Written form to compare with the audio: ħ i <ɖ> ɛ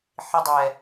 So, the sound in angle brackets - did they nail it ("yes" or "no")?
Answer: no